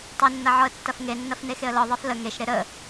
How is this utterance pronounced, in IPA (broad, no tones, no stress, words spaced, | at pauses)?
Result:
tˤʏnːɐʕɔə̯tːɐf ŋenːɐfne xeə̯lɔðˤef lə ŋeʃɾe ɾə